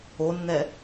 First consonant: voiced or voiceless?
voiced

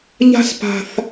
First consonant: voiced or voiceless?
voiced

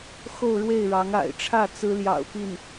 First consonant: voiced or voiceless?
voiceless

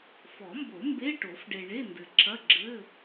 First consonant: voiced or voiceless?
voiceless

